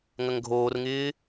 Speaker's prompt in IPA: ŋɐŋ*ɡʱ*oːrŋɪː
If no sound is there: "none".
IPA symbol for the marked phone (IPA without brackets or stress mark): ɡʱ